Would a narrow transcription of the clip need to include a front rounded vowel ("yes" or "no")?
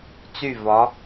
yes